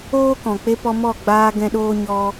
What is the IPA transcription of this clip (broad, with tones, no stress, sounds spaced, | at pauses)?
oː˦ k ɔ̃˨ k͡p e˧ p ɔ˧ m ɔ˦˨ ɡ͡b aː˧ ɡ ɛ̃˧ ɗ oː˦ ɲ ɔ˦